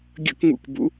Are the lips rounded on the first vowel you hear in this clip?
no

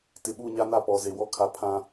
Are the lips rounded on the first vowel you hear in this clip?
no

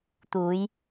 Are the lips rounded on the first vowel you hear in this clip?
yes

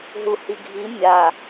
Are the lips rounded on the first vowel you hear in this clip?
yes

